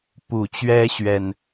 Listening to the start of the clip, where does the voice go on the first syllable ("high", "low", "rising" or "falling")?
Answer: low